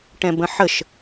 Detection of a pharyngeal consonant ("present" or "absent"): present